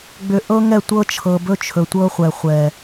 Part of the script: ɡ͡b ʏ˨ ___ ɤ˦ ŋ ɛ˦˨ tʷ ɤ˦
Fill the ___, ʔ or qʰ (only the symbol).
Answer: ʔ